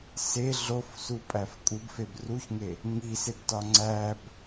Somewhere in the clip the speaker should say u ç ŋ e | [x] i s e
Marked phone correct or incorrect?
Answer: incorrect